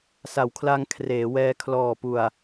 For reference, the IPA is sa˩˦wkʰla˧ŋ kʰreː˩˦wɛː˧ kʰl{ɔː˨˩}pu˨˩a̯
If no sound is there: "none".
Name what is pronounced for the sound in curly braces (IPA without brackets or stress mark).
ɔː˨˩